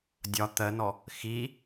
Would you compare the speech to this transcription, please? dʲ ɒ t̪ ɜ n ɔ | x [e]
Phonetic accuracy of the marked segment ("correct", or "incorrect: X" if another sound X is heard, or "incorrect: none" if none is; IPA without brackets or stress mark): incorrect: i